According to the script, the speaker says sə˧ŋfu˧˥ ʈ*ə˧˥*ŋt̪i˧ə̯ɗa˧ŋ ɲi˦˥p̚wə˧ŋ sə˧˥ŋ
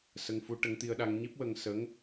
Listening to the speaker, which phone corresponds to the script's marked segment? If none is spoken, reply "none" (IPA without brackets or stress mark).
ə˧˥